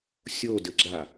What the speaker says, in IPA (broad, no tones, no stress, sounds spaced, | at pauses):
sʲ o d ɘ ɡ͡ǁ a